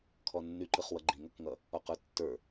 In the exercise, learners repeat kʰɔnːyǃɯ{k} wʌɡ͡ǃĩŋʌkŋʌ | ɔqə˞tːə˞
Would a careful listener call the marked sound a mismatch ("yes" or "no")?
yes